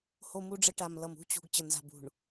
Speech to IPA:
h o˦ m u˦ ɖ͡ʐ ə˦ ʈ a˨ m l ʌ˨ m ṳ˦ t͡ɕ ṳ˨ ɡ t͡ɕ ə˨ n z a̤˨ b ṳ˨ ɳ

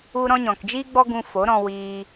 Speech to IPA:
u˧ ɾ ɔ̃˧ ɲ ɔ̃˨ k d͡ʒ iː˦ ɡ͡b ɔ˦ ɡ ũ˧ f o˨˦ ɾ ɔ̃˧ w iː˧

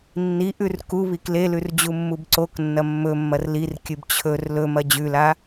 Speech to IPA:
nː i ʔ ʉ r k u β i k l e l ʉ r d͡ʑ u mː u b ǀ o k nː ɐ mː ɵ mː ɐ r l i r kʲ ɨ b t͡ɕʰ ɵ r l ɵ m ɐ d͡ʑ ʉ l a

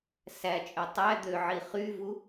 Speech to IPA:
s æ t͡ʃʼ ø tˤ æ d̪ ø ʕ i χ y v u

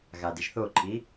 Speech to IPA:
ɣ a d i ʒ θ o ǃʰ i

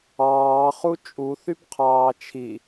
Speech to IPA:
ɑː χ u t͡ʃʼ u θ y b qʰ ɑː t͡ʃʰ i

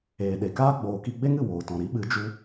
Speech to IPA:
eː˨ ɗ e˨ k aː˦ ɡ͡b oː˨ k i˧ ɡ͡b e˦ ŋ ɨ˨ w oː˨ t ɔ̃˨ ɾ i˨˦ ɓ ɨ˨˦ d͡ʒ u˦

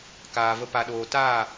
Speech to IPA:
k aː˨ v ə˧ p a˨ ɗ oː˨ t aː˦˨

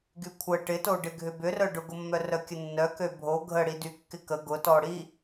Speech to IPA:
ɡ y kʷʰ ə ʈ ɪ t o ɖ ɪ ɡʱ ʏ b ʏ r œ ɖ ʊ ɡ ʊ mː œ r œ kʲ ə nː œ k ø bʱ o ɡʱ ə ɽ i d y kː ɪ k ə ɡ ʊ t ɔ ɽ i

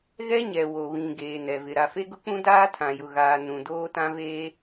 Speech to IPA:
ɣ ɛ˦ ɲ ɛ˨ w o˨ β ĩ˨ ɡ eː˨ n ɛ˨ v ɪ˨ ɾ a˨ f e˦ ɡ ʊ˦ k͡p ũ˦ d aː˦ tʰ ã˨ j ʊ˨ ɣ aː˨ n ũ˨ d oː˦ t ã˦ v eː˦

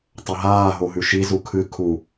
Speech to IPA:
tˤ ɐ ɦ aː ɦ o ɦ ʉ ʃ i z u kʰ ɨ kʰ u

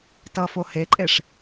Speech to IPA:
t ʌ f o h e ǃʼ e ʂ

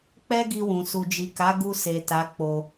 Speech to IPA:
k͡p ɛ˦ ɡ i˧ w ũ˨ s u˨ d͡ʒ i˨ k a˨˦ ɡ u˧ s e˨ t a˨˦ k͡p o˧

